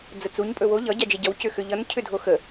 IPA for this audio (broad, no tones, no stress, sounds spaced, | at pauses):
d͡z ə t͡s u ɲ pʼ ɵ w o ʎ ʌ ɟ a d͡ʒ e ɟ ʌ w c ʏ x ʏ ʎ ʌ n cʰ ʏ dʱ o x ə